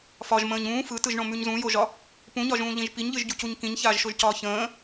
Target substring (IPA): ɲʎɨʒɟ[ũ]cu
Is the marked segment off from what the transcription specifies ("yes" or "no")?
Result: yes